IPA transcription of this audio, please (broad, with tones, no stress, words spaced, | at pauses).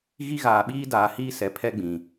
ɣi˦ɣaː˨ɓiː˦ daː˨hiː˦ sɛ˨pʰɛ˦ ɡ͡bĩ˨